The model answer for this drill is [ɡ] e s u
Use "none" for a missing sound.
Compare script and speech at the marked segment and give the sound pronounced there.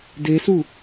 d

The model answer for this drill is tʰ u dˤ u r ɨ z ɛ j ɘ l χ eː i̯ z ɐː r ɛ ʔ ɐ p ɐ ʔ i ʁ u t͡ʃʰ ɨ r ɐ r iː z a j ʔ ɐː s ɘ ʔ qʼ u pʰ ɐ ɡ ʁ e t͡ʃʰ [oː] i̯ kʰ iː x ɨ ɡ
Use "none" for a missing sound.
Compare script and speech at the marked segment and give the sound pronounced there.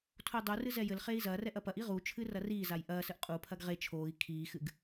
oː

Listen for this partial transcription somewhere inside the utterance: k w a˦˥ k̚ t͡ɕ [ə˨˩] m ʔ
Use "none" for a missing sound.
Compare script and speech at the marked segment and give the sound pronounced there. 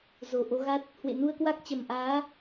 ə˨˩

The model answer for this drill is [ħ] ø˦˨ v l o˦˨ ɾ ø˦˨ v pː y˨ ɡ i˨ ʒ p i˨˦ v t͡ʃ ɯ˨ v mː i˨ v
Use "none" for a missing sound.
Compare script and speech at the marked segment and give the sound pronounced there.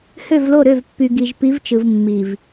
h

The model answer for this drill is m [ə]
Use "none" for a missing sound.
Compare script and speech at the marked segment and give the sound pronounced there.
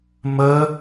ə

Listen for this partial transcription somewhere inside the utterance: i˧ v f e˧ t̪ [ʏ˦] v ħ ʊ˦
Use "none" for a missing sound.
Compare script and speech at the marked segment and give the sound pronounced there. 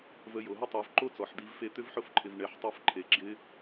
ʏ˦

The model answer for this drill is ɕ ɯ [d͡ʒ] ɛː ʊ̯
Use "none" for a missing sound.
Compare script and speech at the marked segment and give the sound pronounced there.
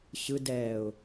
d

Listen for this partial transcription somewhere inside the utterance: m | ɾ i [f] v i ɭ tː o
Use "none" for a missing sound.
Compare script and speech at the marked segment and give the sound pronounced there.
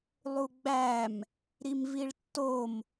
m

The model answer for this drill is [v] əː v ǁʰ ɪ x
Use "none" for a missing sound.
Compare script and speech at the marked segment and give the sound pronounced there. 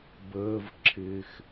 b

